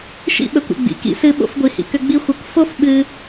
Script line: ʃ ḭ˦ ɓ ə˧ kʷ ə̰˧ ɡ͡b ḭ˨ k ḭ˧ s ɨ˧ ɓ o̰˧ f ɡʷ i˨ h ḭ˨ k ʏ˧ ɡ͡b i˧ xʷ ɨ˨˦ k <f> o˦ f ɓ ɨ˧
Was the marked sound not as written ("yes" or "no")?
no